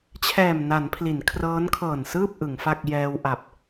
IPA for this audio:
t͡ɕʰɛː˨˩mna˩˦n pʰli˩˦nkʰrɤː˦˥nkʰɤː˨˩nsɯː˥˩p̚ ʔɯ˩˦ŋfa˥˩k̚ jɛː˧wʔa˨˩p̚

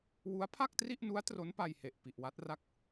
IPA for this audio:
wu˦˥a̯pʰa˥˩k̚tri˥˩ʔnu˦˥a̯ tro˦˥npa˧jhe˨˩ʔ pi˨˩ʔwa˦˥t̚ra˥˩k̚

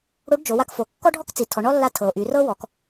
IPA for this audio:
ɽo˧˥ɖd͡ʒo˩˧wa˧kfo˩˧ kːɔ˥ɖʱɔ˥kt͡si˩˧ tʰɔ˩˧ ɳɔ˥lːa˧˥ tʰɤ˩o̯ʔy˩˧rɤ˥ wɔ˩˧k

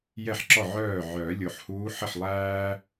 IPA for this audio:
jɛ˥˩ħǁɔ˥˩ ʕœː˥˩ ʕœː˨˩˦lʲo˨˩ħhuː˧˥ ħə˥˩ħlˠæː˥

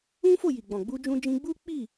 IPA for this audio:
ũ˦fo˦˨ ji˨ɡ͡bɔ̃˨ɡ͡bu˧ d͡ʒũ˧d͡ʒĩ˧ɡ͡bu˦ k͡pi˦˨

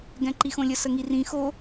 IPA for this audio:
ɡɛ̃ǃixõlʲə səŋirĩ xo

